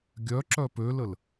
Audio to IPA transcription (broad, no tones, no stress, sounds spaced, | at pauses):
ɡʲ œ ǁ œ p ø l ə l